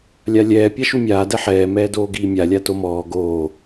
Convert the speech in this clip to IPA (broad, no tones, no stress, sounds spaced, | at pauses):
lʲ a lʲ ɛː pʲ a ʃ u mʲ aː d ɛ ħ ɛː m ɛː d oː ɡ iː mʲ a lʲ a t o m ɔː ɡ oː